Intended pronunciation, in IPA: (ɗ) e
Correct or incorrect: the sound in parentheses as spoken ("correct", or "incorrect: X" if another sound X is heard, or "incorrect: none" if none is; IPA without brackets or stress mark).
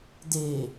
incorrect: d